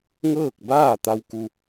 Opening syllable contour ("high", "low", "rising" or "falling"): falling